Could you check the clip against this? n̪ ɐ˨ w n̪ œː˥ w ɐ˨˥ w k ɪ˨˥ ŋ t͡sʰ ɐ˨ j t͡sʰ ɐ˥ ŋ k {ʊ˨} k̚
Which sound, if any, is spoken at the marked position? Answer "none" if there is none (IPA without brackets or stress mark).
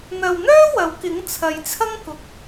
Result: ʊ˨